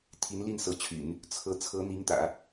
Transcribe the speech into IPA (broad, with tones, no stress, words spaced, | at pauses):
t̪ʰi˧˥nli˥˩nsɤ˧˥t͡ɕʰy̰˨˩˦n | t͡sʰɤ˧˥ t͡sʰɤ˧˥ n̪i˧˥ŋt̪ä̰˨˩˦